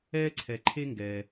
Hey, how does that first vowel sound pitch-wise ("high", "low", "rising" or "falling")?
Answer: high